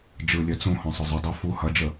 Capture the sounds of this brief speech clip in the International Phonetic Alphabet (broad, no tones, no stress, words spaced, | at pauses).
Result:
d͡ʒɯlʲœ t͡sũhɔ̃sˤʊ zˤʊdˤo fu hɐd͡ʒə